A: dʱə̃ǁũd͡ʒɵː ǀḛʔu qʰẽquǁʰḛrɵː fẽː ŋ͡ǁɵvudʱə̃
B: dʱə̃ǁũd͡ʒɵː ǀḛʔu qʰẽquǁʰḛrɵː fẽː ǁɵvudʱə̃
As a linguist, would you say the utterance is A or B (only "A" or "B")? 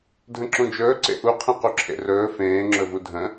A